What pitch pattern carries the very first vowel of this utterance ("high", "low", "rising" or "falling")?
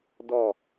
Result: falling